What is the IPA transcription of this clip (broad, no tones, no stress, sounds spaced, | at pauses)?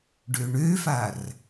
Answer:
ɖ ø ɳ ø f a r